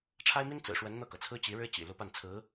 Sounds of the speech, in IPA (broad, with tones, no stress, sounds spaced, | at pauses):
ʈ͡ʂʰ a˥ ɪ̯ m i˥ n t͡s ɹ̩˨˩ ʂ w ə˧˥ n n̪ ɤ˥˩ k ɤ˩ t͡sʰ ɹ̩˥ t͡ɕ i˧˥ ɻ ɻ̩˥ t͡ɕ ḭ˨˩ l u˧˥ p a˥˩ n t͡sʰ ɹ̩˧˥